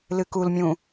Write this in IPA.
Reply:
l ɨ k u l mʲ ũ

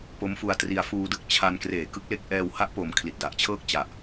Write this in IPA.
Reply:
p o˦˥ m f u˧ a̯ t r i˧ a̯ f uː˧ d ɯ˥˩ k̚ t͡ɕʰ a˧ n k r eː˩˦ k ɯ˦˥ k̚ l e˥˩ k̚ ʔ ɛː˧ w h a˦˥ ʔ p o˨˩ m kʰ l i˨˩ t̚ d a˨˩ ʔ t͡ɕʰ ɤː˥˩ k̚ t͡ɕ a˨˩ ʔ

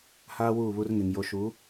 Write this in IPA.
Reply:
h aː˦ w uː˦˨ β u˦ r ŋ e˨ ŋ j o˨ ʃ u˨˦

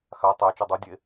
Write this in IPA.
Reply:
x a tˤ æ t͡ʃ o dˤ u dʲ e

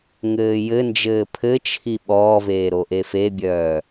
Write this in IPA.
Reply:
ŋ ɘː j ɘ n d͡ʒ ɘː pʰ ɘ t͡ʃʰ i ɓ ɔː v eː ɾ o ʔ e f e bʲ œː

